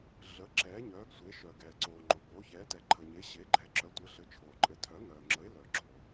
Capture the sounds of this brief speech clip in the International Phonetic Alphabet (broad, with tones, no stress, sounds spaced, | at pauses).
ɮ ə˩˥ ǁ ɛː˩˥ ɲ œː˩˥ ɡ sʷ e˩˥ ʃ œ˩ ɡ ɛː˩ ǀ oː˩ ŋ͡ǃ o˩ b oː˩˥ ç ɛː˩˥ t ɛ˩ ǃʰ ə˩ ɲ e˩˥ ɕ e˩˥ ɡ͡ǃ ɛ˩˥ ǁ œ˩˥ tʷ ɘ˩˥ ɬ ɘ˩˥ t͡ʃʰ oː˩ ǃʼ ɘ˩˥ tʰ œ˩˥ ŋ œː˩ ŋ͡ǁ ə˩˥ ɪ̯ l œ˩ ɡ͡ǁ o˩